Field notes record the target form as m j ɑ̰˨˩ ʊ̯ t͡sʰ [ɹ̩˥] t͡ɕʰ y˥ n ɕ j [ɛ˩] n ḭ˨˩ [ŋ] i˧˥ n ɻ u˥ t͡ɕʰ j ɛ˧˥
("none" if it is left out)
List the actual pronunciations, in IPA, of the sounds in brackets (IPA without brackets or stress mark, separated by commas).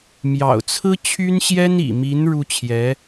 ɹ̩˥, ɛ˥, m